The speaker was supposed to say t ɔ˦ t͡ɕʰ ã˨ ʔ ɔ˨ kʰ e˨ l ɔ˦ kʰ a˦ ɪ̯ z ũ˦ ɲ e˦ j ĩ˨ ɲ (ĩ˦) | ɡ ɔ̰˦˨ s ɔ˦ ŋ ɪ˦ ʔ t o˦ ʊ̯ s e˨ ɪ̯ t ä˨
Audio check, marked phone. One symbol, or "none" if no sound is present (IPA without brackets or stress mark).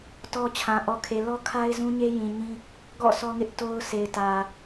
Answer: ĩ˦